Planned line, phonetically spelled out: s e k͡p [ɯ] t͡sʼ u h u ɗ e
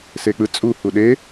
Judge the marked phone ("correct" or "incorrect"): correct